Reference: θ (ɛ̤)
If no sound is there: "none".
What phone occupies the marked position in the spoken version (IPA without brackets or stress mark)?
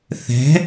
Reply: ɛ̤